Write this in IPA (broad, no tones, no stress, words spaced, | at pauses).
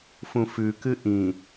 fũfʉkɨ ʔĩ